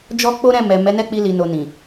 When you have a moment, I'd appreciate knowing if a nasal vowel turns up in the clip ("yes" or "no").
yes